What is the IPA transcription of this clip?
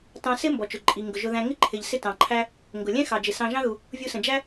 t ɑ̃˧ s ɪ˥ m b ɔ˩ t͡ʃ ʊ˩ ǃʼ i˩ ŋ ɡ ʊ˩ ʒ ʊ˧ ð æ̃˧ ŋ ɪ˥ ǃʰ ɪ˩ ʎ s ɪ˥ t ɑ̃˩ ǃʰ æ˥ | ŋ ɡ ʊ˩ lʲ ɛ̃˥ x ɑ˩ d͡ʒ ɪ˩ s ɑ̃˧ ʒ ɑ̃˥ ð u˩ | vʲ u˧ s ə̃˩ d͡ʒ æ˥

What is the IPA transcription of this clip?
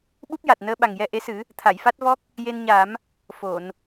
ɓ u˦˥ p̚ j a˨˩ t̚ n əː˧ ɓ a˨˩ ŋ j ɛ˧ ʔ e˧˥ s ɨ˨˩˦ | t̪ʰ a˨˩˨ j f a˦˥ t̚ v ɔ˦˥ k̚ | j e˧ n ɲ a˨˩˦ m | f o˨˩˨ n

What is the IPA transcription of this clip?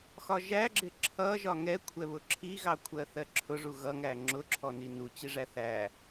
x ɒ ʒ æ ɡ͡ǁ ɪ ǁʰ ʌ ʒ ɒ ŋ ɛ kʷʰ ɛ β ʊ ǁʰ i ɣ ɑ kʷʰ ɜ θ ɜ ǁʰ ʊ ʐ u ɣ ʌ ŋ æ ŋ͡ǁ ʊ ǁʰ ɔ n i n u t͡ɕ i ʐ æ θ æ

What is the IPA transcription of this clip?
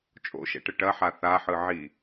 t͡ʃʼ o̰ ʃ ɛ̰ ʈ ə ʈ ɐ ħ a θ a ħ ɯ ʕ i

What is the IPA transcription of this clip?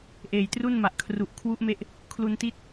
ʔ eː˨˩ j t r u˥˩ n m a˨˩ ʔ kʰ r u˨˩ ʔ kʰ w u˦˥ ʔ m e˦˥ ʔ | kʰ l u˧ n t i˦˥ t̚

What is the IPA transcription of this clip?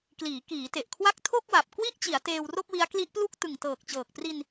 k l iː˩˦ k iː˩˦ t e˨˩ ʔ kʰ w a˦˥ k̚ tʰ o˥˩ k̚ w a˨˩ p̚ k w i˥˩ ʔ t͡ɕ i˩˦ a̯ t eː˧ w r o˥˩ k̚ w i˦˥ a̯ k l i˦˥ ʔ p l u˥˩ k̚ t ɯ˨˩ ŋ t ɤː˨˩ k̚ t͡ɕ ɤː˨˩ k̚ p r i˧ n

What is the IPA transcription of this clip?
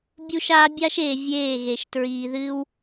bʲ u˦ ʃ aː˦ bʲ a˦ ʃ eː˨ vʲ eː˦˨ ɣ e˨ ʃ t ɹ iː˨ ð ɨː˦ w

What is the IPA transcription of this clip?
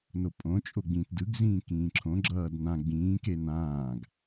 n o pʼ õ t͡ʃʼ o ɡ͡b ĩ t d ɯ ɡ z ĩː k ĩː ǁʰ õ ɡ͡ǁ ʌː d n ã ɡ͡b ĩː k e n ãː ɡ

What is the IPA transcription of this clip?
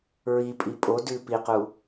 ɹ i pʼ i pʼ o d ʉ p i q u

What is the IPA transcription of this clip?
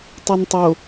tˤ ɛ n tˤ o

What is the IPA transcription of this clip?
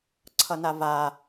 ǀʰ ʌ n a v a

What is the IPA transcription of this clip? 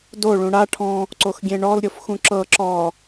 d o ɭ ũ ɽ a ʈʰ ɔ̃ | ǀ o x ɡʲ ẽ ɳ ɔ l ɾʲ o f x ũ ǁ ɤ ǁ ɔ

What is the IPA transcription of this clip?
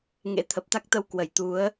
ŋ ḛ˧˥ t̪ʰ ə˨˩ p̚ t̪ a˦˥ k̚ t̪ ə˧ w k w ə˧˩ j t̪ u˨˦ ə̯

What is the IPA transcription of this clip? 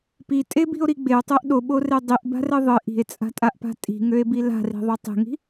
p i tʼ e b i̤ o̯ ɾ i ɡ͡b e o̯ tˤ ø ʔ ɗ o ɓ o r e dˤ i ʔ b a̤ r ɘ ðˤ ɘ ʔ i̤ e̯ t͡sʼ a̤ tʼ a ʔ p a̤ tʼ i̤ ŋ ø e̯ b i l a̤ r i̤ ðˤ o tˤ e̤ ŋ i̤

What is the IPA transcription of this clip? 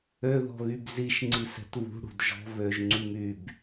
ø ð ɔ̤ ɣ y b z i ʃ ŋ͡ǀ i s ɛ̤ t β ṳ ɽ ṳ d ʒ ɔ̤ β ø ʒ ŋ͡ǀ y m y b

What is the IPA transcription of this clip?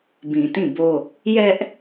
b ĩ˨ t ĩ˦˨ b o˦ | j ɛ˦ ʔ

